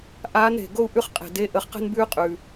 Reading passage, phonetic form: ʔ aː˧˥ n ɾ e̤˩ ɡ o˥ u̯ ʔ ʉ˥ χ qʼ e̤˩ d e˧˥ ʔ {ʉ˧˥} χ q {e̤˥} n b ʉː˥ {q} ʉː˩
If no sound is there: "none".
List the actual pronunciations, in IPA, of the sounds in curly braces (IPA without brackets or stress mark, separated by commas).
ə˧˥, e̤˥, qʼ